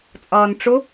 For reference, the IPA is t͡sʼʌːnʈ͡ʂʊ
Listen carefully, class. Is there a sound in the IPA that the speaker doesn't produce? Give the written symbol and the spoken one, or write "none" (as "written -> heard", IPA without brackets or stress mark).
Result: none